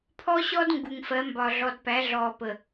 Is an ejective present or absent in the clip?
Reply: absent